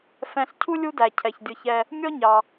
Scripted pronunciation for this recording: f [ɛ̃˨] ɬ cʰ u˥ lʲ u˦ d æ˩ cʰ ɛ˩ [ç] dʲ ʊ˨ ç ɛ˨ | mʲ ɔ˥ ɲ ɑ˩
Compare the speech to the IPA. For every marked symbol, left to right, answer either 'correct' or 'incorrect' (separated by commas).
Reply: correct, correct